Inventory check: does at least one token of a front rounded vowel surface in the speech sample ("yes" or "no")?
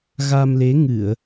no